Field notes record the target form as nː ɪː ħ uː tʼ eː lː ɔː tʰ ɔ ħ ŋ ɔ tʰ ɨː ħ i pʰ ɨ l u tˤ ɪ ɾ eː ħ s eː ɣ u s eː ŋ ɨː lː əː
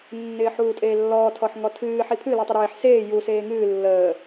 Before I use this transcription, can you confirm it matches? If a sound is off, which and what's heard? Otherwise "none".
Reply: ɣ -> j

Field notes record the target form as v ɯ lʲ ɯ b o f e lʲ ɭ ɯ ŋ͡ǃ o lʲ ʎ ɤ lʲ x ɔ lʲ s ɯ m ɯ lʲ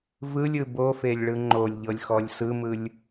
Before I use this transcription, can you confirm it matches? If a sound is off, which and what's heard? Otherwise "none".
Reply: none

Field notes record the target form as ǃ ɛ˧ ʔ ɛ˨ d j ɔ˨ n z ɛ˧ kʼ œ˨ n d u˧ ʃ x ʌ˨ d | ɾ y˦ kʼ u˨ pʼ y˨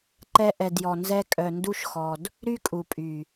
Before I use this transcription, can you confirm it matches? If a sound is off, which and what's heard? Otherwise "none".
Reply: ʌ˨ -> ɔ˨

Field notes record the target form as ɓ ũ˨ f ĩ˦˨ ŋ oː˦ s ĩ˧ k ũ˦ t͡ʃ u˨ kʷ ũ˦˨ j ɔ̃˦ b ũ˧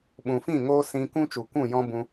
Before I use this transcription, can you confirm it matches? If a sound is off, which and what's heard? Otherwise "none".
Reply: none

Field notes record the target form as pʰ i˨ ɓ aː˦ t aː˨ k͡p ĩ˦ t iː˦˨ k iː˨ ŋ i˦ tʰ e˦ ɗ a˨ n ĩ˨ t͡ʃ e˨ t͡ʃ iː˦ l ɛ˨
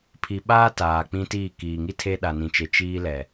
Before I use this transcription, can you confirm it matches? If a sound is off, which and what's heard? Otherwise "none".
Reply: none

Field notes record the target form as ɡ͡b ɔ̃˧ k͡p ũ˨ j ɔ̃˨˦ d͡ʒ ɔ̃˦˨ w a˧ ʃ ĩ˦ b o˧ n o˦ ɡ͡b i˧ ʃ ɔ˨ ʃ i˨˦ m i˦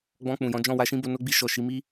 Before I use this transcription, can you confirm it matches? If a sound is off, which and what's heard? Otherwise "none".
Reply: none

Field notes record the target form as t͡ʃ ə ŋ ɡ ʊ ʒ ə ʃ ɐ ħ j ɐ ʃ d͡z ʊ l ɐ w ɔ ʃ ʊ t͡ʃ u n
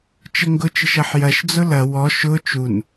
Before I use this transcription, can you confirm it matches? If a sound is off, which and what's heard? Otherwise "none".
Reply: ʒ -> t͡ʃ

